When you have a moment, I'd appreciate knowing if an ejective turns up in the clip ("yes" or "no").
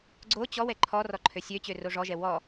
no